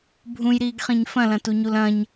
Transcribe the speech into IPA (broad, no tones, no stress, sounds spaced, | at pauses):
bʱ ũ j ɾ iː ɡ χ ĩ ɲ f ɐ̃ l ɐ̃ t u ɲ u l ɐ̃ ɲ